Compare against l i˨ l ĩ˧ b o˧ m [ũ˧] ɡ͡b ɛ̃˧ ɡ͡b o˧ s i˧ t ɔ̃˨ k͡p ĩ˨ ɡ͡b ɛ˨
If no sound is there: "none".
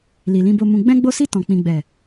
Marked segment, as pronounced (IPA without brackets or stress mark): ũ˧